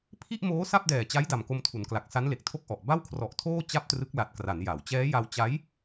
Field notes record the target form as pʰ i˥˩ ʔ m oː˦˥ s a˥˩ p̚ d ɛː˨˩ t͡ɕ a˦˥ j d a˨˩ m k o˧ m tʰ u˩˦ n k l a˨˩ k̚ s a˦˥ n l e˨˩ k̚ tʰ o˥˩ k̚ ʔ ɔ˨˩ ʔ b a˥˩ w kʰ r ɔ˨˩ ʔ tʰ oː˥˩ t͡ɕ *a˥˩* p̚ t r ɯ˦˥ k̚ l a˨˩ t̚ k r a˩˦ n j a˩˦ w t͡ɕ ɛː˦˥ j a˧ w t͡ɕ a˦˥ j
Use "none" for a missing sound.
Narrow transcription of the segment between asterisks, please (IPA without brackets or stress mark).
a˥˩